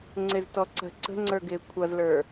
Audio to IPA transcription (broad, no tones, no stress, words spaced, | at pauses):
ŋ͡ǀɪztɔǀə̤ ǀə̤ŋ͡ǀə˞ ɡɪːkʷʰʌzlə˞